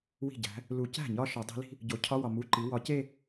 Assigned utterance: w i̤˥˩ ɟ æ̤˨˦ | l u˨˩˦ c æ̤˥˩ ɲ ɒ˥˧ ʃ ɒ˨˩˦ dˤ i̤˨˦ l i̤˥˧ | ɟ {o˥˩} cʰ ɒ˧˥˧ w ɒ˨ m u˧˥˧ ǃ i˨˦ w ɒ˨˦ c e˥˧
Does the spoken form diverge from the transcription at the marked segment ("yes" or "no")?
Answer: yes